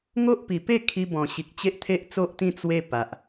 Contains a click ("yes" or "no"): no